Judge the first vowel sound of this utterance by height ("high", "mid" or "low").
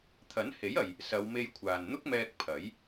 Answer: low